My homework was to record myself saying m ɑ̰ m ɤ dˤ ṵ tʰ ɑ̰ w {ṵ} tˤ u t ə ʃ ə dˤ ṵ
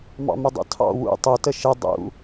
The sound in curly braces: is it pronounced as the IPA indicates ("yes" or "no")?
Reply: yes